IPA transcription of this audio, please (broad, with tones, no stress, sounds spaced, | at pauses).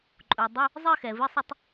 ǃʼ u˩ dˤ u˧˥˧ | zˤ ɘ˥˧ x ɛ˩ v ɨ˧˥˧ sˤ ɐ˥˧ tˤ